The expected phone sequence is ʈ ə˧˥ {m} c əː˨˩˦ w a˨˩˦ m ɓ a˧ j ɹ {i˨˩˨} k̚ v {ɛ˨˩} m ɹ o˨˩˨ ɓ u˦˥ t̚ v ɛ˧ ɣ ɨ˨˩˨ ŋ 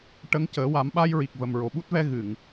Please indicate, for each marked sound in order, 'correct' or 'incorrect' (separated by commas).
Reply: incorrect, incorrect, incorrect